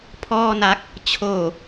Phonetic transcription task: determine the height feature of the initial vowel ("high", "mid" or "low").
mid